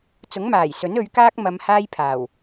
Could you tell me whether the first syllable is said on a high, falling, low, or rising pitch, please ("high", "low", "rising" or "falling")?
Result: rising